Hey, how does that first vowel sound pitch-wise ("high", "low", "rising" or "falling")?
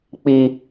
low